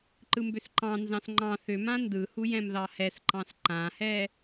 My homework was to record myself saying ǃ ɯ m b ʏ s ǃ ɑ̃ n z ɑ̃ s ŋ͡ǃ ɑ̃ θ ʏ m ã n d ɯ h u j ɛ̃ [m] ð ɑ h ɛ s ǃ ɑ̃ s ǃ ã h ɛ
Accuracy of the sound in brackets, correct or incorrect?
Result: correct